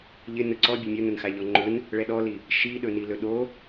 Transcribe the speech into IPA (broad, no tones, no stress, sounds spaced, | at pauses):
ʎ ɪ n ɵ ǀ ɔ bʲ ɵ mʲ o n ɵ n x a ʎ ɔ ŋ͡ǃ ɵ n | ɭ ɛ ɗ ɔ l i | ʃ i ɗ ɵ n i l ɵ ɗ o